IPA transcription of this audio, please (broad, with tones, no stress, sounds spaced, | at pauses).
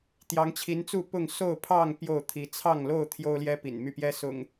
t̪ j ɑ˨˦ ŋ t͡ɕʰ i˨˦ n t͡s u˥˨ p ʊ˥˨ ŋ s o˥˨ ʊ̯ pʰ ɑ˥˨ ŋ p j o˥˨ ʊ̯ t̪ʰ i˨˦ t͡sʰ ɑ˥˨ ŋ l o˥˨ ʊ̯ t̪ʰ j o˦ ʊ̯ l j ɛ˦ p ḭ˨˩ n m y˥˨ p j ɛ˦ s ʊ̰˨˩ ŋ